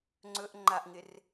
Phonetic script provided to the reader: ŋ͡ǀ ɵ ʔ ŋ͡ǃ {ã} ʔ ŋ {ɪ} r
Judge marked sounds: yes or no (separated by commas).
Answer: no, yes